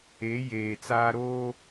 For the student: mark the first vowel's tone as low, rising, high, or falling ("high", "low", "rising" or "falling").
rising